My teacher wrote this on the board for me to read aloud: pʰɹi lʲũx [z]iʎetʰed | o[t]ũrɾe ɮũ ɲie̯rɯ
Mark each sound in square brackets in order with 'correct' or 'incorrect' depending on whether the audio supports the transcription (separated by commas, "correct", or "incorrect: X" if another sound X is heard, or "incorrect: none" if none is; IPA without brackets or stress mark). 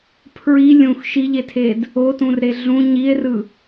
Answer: incorrect: ʃ, correct